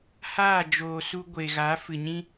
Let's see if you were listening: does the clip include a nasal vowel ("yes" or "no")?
yes